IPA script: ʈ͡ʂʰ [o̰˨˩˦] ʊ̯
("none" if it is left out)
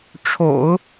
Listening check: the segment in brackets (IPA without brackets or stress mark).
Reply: o̰˨˩˦